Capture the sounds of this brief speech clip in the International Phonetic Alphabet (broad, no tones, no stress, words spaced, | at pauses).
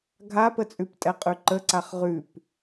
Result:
ɡʱapət͡sʼʉp tʼɛqʼʉǃəǀaχ ʁʉp